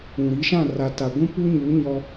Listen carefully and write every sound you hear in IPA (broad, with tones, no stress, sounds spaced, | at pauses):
ũ˨ ɾ i˨˦ ʃ ã˦˨ r a˨ t a˨ ɡʷ ũ˦ p u˦ ɲ uː˨˦ ɲ ɔ˦